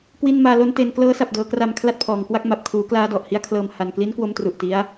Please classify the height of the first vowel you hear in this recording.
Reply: high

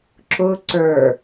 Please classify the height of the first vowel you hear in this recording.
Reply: high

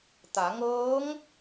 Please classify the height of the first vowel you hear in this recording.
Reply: low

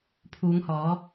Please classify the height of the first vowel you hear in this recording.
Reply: high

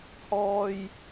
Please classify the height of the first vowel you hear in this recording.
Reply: mid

